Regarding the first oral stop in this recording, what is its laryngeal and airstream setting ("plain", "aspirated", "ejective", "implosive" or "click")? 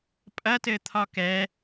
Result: ejective